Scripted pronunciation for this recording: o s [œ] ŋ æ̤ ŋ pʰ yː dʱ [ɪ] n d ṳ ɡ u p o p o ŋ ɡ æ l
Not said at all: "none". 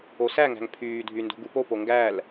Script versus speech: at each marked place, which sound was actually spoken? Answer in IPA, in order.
æ, y

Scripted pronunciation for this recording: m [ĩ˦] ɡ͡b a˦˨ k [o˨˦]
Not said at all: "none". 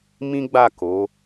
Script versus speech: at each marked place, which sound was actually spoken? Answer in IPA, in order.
ĩ˦, o˨˦

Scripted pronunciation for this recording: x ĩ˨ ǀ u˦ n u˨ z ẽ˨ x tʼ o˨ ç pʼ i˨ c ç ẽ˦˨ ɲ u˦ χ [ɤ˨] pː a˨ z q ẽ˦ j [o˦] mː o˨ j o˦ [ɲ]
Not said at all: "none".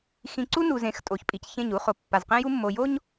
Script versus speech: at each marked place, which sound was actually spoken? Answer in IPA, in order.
o˨, u˦, ɲ

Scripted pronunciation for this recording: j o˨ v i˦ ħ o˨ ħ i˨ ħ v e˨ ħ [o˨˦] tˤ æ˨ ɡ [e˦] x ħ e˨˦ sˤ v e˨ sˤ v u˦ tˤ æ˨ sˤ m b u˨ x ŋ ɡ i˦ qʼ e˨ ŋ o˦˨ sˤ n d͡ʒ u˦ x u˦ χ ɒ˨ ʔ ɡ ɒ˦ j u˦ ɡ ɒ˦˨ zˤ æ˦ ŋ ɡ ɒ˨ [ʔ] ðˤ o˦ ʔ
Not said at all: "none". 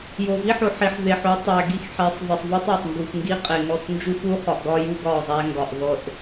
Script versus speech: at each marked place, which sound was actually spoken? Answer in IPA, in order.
o˨˦, i˦, ʔ

